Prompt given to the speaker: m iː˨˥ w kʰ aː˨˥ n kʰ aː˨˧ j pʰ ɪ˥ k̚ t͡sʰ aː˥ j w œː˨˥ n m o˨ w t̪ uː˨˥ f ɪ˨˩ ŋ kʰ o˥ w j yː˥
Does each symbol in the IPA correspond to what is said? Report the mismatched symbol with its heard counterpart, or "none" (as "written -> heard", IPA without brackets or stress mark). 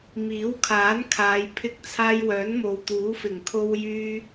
none